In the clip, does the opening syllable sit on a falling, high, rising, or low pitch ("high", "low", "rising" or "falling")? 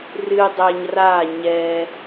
low